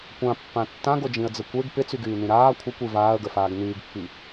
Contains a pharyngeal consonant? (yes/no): no